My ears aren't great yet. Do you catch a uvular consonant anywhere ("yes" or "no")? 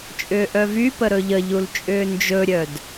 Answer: no